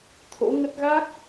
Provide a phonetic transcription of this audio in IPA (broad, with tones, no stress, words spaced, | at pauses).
t̪ʰo̰˧˥ŋə˦˥t̚ ɣa˦˥k̚